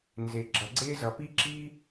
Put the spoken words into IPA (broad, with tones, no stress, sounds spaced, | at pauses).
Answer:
n z e˩ ɡ͡ǁ ʌ˩ ɡ͡ǀ e˥ z ʌ˩ p i˥ ǁ i˥